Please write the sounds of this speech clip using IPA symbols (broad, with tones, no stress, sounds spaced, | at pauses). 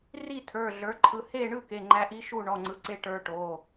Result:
r i˥˨ tʰ ə˞˩˧˩ ɮ ə˞˩˧ ǃʰ ɯ˩˧˩ h e˥˨ ɳ ɯ˥˨ k e˩˧˩ ŋ͡ǃ æ˧˥ ʔ i˧˥ ʃ u˥˨ ɳ ɔ˩˧˩ ŋ͡ǀ ɯ˩˧ ǀ e˧˥ ʈ ə˞˧˥ ʈ o˩˧˩